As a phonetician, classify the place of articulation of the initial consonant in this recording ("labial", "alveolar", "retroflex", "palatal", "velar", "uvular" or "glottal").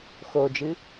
velar